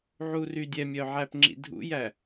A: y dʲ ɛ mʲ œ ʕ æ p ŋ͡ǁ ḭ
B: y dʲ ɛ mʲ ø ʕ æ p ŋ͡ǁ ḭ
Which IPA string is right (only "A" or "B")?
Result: A